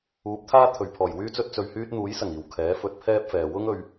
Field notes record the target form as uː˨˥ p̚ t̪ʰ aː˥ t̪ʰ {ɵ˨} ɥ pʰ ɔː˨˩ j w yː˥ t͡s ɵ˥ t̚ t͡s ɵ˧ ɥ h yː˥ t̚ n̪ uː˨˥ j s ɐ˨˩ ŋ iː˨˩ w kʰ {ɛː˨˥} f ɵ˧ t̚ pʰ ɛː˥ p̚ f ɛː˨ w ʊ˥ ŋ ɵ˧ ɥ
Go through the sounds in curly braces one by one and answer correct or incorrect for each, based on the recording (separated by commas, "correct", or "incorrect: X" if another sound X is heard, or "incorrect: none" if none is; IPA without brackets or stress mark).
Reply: correct, correct